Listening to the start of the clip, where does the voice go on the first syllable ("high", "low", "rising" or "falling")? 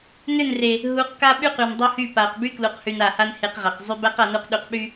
falling